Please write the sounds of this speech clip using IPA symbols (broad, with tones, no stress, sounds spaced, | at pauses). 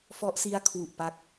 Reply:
f ɔ˦˥ ʔ s i˦˥ a̯ kʰ w u˨˩ ʔ p a˦˥ k̚